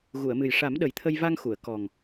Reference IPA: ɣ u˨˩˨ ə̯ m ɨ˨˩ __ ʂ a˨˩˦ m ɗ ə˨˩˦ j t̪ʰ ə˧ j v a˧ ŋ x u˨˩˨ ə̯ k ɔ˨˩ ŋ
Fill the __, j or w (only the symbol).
j